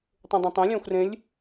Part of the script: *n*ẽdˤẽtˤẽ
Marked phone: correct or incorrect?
incorrect